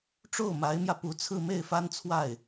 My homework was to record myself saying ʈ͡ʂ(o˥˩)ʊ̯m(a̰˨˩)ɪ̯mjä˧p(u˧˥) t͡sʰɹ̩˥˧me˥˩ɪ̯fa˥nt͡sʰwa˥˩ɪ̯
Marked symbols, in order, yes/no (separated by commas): yes, no, yes